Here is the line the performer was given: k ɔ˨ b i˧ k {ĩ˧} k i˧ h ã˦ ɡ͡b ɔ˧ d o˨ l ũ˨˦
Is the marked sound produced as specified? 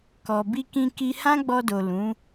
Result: yes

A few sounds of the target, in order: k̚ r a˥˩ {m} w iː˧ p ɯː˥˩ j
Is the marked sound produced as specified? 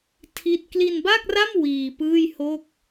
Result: yes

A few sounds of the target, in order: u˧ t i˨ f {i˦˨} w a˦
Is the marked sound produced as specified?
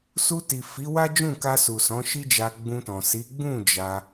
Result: no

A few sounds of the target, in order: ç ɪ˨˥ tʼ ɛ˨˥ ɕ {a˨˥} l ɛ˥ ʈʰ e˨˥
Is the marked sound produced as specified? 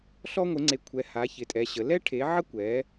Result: no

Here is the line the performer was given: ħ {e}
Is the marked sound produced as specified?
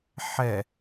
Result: no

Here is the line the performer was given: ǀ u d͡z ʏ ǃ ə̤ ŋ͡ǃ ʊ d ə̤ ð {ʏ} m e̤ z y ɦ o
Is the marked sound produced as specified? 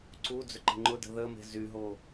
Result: no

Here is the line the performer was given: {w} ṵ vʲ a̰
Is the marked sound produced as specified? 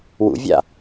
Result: yes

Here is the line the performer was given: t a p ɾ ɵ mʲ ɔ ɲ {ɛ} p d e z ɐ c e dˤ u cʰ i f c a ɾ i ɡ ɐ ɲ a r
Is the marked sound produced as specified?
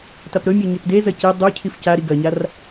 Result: yes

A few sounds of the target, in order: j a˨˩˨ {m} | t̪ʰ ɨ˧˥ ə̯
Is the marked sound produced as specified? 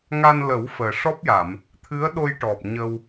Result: yes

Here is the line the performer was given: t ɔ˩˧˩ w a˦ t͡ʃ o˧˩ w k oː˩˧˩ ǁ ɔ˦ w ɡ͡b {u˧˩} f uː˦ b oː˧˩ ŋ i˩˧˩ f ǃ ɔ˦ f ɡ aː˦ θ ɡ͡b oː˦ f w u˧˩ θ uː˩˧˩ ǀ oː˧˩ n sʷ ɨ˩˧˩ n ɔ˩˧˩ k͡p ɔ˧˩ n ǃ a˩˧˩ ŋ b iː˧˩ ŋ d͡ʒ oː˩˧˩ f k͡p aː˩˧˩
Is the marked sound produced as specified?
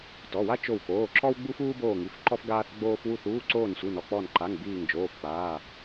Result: no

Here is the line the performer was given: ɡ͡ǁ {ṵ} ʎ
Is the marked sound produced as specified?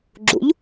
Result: yes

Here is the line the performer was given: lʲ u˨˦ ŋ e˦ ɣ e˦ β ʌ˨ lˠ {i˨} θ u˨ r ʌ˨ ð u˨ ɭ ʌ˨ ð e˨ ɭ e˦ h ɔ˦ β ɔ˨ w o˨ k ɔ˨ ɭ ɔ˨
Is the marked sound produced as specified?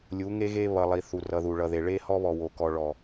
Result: yes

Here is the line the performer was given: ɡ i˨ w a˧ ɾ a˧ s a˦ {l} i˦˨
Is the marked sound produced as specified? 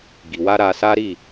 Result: no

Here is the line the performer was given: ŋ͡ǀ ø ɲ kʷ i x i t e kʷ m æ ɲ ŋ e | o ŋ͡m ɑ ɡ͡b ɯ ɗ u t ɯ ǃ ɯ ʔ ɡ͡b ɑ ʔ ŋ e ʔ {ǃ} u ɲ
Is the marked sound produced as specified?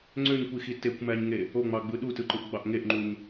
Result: no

